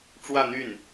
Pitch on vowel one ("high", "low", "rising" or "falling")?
falling